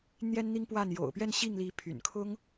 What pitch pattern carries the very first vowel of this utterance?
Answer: high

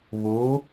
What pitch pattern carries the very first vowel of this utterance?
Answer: rising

